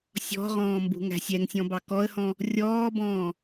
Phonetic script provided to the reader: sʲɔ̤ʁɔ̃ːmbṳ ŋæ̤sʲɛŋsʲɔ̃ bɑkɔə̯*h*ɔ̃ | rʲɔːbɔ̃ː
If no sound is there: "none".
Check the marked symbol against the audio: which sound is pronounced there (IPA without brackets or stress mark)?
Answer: h